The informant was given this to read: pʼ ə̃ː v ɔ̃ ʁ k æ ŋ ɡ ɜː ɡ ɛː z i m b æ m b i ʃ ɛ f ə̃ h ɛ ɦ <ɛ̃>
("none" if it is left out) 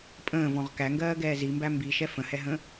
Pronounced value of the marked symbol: ə̃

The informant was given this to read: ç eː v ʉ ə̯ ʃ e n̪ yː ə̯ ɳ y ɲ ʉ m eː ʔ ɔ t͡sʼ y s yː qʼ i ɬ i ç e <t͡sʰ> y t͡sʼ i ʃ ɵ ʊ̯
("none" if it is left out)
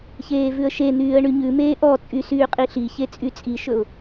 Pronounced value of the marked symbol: t͡sʼ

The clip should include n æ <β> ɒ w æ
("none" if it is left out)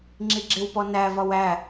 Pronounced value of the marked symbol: v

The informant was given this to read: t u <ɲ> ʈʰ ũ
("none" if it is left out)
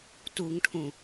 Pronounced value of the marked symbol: ŋ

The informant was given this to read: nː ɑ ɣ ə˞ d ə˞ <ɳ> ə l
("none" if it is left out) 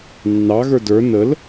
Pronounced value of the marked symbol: n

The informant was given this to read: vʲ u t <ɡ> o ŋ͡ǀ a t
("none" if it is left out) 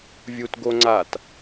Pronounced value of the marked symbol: ɡ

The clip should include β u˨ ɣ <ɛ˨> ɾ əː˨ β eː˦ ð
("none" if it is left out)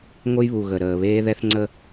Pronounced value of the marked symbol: ə˨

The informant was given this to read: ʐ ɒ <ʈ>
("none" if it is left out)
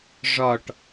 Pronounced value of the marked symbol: ʈ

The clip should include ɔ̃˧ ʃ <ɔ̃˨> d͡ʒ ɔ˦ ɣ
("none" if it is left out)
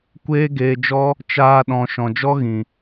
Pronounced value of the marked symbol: ɔ̃˨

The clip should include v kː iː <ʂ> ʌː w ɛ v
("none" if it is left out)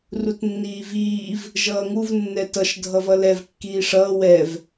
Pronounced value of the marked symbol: ʂ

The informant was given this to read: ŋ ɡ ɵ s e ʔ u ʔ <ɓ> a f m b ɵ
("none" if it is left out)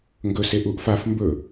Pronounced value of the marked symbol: f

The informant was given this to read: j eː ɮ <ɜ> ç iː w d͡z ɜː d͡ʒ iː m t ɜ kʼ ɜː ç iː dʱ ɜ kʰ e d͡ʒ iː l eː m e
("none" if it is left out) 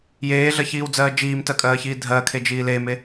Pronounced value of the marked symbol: ɜ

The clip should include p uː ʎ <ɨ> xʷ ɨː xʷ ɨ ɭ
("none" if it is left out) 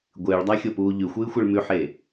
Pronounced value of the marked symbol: ʉ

